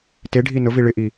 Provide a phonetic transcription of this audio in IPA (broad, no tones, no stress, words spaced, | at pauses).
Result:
teɖʱi nʊvi ɭɪʔi